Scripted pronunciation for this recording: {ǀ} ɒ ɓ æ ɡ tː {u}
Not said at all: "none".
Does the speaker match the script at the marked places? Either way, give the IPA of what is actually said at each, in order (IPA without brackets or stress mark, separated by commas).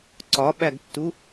ǀ, u